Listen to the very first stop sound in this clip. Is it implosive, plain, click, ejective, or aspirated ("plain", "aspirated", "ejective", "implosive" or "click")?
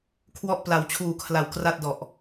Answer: aspirated